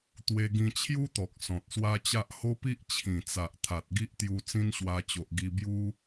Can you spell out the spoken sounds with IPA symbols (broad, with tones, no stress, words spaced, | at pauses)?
t̪we˧ɡĩ˧t͡ɕʰju˦t̪ɔ˨k̚ sɔ̃˨t̚swa˦t͡ɕa˦ʔ ho˦pi˦ʔ t͡ɕʰĩ˨˩t͡sa˨ʔ t̪ʰa˨t̚ɡi˦ʔt̪ju˧ t͡sĩ˦nɕwa˧t͡ɕo˨ʔ ɡi˧bju˦